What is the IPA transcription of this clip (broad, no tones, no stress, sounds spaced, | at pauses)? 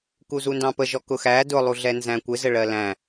k u z u n d ɑ̃ p ə ʒ ɔ k ʊ x æ d ʊ lˠ u ɮ ɛ n z æ̃ kʷ ɪ z ə ɭ ɜ l æ̃